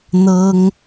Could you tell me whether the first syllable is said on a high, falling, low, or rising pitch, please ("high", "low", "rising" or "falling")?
high